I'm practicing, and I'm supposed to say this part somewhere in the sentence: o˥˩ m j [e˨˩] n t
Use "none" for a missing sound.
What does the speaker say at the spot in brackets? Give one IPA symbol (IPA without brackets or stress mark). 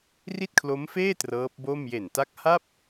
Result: e˨˩